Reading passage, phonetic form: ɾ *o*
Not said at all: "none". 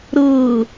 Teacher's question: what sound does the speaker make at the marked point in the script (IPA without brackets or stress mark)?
ɤ